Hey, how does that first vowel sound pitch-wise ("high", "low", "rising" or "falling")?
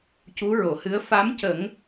rising